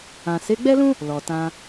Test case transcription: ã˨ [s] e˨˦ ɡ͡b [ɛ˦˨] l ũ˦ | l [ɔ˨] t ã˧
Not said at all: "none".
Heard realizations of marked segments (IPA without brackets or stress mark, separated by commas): s, ɛ˦, ɔ˨